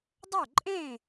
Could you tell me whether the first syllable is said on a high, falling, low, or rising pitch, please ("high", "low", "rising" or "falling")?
falling